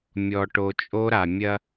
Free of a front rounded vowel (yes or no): yes